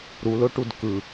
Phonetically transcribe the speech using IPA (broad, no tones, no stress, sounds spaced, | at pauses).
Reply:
ɾ u l ʊ ʈ u d k ɯ